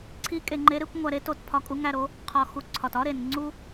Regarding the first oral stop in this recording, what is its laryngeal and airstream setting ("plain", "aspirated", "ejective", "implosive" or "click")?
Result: click